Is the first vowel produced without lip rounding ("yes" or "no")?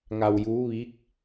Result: yes